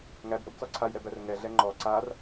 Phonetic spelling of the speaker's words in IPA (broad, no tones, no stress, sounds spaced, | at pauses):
ŋ æ b ʔ ə b t͡s ɔ ǀʰ a j ɾ ɛ b æ r ŋ ɛ ɮ ɛ ŋ͡ǃ ɔ ǀ a r